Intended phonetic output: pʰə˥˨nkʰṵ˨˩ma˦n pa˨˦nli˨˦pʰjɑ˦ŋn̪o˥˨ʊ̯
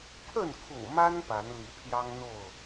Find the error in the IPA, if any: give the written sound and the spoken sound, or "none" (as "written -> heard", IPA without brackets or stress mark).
none